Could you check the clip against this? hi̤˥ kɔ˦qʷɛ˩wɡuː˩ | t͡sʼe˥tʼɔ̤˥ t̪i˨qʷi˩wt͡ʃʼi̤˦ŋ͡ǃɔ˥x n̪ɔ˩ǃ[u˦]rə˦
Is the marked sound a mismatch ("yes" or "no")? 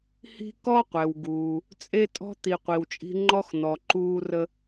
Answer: yes